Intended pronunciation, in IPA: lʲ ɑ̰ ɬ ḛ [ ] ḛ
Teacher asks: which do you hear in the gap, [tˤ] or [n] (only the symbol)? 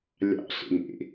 n